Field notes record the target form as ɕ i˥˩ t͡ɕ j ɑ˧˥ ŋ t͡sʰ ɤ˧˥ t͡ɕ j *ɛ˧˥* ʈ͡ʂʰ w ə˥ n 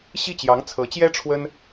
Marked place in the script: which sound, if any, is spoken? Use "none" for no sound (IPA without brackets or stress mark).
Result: ɛ˥